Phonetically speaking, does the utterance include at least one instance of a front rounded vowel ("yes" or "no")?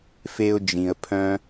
yes